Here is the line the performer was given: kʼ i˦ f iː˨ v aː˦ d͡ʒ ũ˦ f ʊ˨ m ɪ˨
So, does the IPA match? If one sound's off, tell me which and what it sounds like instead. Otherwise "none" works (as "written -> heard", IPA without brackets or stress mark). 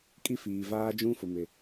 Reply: none